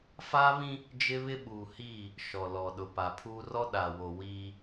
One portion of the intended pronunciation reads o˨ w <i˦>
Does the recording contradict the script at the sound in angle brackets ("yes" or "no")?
yes